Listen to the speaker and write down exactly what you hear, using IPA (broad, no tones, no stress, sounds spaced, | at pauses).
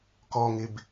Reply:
k ɔ ŋ ɪ b